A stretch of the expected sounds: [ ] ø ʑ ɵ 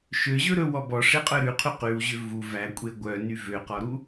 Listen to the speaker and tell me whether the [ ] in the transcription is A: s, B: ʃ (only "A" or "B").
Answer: B